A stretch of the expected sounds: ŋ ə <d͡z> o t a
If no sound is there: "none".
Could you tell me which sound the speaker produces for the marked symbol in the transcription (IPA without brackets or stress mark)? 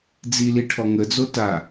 d͡z